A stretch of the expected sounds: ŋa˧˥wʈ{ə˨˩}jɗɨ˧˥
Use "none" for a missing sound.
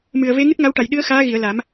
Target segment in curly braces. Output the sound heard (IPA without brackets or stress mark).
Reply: a˨˩